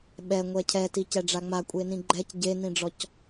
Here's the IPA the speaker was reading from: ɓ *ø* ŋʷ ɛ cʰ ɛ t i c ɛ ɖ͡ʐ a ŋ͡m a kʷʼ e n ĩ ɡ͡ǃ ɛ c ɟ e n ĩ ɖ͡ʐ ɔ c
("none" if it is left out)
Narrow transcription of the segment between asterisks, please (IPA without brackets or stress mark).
ɛ